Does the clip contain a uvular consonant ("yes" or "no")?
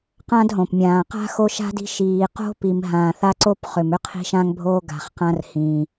yes